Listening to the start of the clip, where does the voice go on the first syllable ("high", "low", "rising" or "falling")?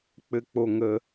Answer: low